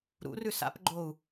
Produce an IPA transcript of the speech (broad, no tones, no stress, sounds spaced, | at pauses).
ɾ ṵ r ʉ s a̰ p ɡ͡ǃ o u̯